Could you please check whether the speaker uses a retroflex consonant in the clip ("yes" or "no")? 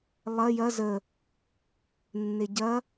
no